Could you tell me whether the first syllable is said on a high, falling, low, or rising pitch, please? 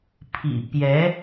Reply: low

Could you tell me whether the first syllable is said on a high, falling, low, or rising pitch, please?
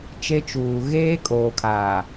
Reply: high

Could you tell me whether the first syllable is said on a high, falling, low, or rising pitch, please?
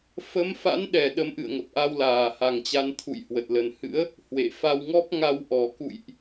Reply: rising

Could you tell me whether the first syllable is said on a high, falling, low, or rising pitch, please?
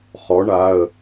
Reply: rising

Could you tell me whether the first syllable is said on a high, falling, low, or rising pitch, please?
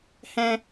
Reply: high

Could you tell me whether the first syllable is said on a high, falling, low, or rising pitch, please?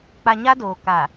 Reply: low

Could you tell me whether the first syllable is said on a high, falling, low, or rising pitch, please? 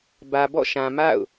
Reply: low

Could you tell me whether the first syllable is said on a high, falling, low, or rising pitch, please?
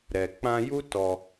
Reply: low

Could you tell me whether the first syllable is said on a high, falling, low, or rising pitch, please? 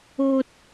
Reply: high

